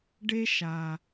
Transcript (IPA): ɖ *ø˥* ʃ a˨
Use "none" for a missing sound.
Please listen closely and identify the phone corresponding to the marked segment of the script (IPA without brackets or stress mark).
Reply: e˥